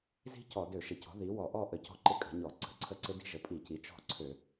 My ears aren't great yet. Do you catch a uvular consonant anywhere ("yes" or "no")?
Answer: no